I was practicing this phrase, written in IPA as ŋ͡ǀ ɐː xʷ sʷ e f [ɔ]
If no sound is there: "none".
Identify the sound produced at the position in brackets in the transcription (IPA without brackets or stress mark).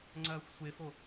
o